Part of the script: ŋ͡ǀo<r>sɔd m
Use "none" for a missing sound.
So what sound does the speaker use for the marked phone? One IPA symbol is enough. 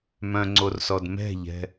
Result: r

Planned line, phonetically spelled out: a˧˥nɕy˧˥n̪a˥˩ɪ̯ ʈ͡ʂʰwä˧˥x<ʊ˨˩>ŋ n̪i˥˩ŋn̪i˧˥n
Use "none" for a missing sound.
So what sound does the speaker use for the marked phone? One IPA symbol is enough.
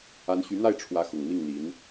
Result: ʊ˨˩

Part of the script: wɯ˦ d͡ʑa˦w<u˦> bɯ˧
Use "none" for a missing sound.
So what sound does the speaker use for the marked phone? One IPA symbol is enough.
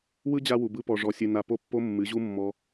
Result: u˨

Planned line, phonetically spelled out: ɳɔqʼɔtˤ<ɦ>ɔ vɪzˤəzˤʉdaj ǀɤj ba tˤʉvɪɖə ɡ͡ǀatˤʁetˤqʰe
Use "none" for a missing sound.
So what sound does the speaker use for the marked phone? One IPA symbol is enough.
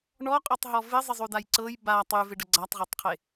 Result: ɦ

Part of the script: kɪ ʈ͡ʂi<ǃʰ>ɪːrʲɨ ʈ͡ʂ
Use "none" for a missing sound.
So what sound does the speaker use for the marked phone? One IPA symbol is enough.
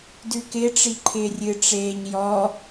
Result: ǃʰ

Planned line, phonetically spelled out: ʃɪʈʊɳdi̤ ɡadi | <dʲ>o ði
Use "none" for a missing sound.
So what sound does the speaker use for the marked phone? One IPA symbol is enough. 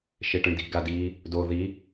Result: d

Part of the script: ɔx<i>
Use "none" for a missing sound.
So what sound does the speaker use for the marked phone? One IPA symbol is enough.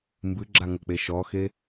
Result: e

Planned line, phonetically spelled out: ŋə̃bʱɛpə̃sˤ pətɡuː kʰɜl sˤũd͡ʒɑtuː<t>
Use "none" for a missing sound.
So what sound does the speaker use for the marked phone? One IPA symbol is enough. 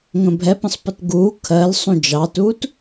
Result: t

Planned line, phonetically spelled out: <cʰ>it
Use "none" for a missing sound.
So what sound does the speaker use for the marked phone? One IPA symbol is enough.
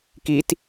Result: k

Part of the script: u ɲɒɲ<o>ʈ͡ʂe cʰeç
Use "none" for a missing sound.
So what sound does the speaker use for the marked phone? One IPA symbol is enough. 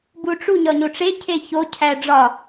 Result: o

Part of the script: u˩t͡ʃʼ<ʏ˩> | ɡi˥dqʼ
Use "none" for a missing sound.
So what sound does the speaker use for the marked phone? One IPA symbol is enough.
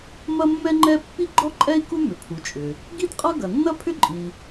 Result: ʏ˩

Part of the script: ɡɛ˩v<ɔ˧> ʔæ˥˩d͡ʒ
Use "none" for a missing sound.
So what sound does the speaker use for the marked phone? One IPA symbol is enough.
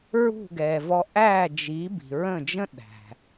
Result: ɔ˧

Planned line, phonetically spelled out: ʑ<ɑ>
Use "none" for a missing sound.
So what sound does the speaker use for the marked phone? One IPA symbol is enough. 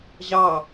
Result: ɑ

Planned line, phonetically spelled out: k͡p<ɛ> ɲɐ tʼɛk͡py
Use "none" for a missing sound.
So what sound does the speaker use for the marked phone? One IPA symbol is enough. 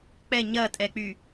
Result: ɛ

